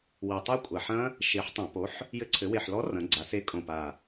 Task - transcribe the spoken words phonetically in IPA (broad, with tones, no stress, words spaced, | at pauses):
wi˨˩tˤo˦˥ kʷʼa˨˩ħɐ̃˦˥ | ʃe˨˥ħtˤɐ̃˧˩˧po˨˥ħ | jɘ˨˥ǀʰɘ˩˧we˨˩ħlɔ˨˥ rɐ̃˩˧ɡ͡ǀa˩˧se˨˥ kʼõ˨˩pa˨˩